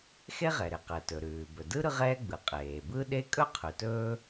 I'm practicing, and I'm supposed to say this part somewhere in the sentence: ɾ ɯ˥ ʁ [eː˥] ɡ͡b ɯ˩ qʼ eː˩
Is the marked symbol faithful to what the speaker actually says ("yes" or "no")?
no